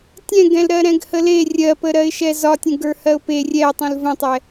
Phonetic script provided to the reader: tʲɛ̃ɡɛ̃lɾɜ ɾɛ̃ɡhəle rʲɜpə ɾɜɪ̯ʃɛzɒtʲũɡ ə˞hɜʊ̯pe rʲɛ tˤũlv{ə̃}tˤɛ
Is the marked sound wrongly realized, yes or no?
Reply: no